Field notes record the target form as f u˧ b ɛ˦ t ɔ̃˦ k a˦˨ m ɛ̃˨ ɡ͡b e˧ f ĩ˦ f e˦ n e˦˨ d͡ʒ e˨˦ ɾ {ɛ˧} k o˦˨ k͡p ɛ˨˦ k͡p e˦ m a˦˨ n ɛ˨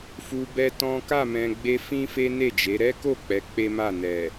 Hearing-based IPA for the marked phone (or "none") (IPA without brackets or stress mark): ɛ˦